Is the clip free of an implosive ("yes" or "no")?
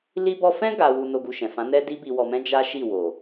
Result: yes